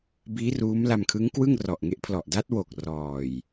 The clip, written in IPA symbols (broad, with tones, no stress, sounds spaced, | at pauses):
b iː˦˥ r uː˦˥ m l a˧ m kʰ ɯ˦˥ ŋ k w ɯ˥˩ ŋ r ɔ˨˩ ʔ ŋ e˦˥ ʔ pʰ l ɔ˨˩ ʔ d a˦˥ t̚ w o˨˩ k̚ r ɔː˨˩ j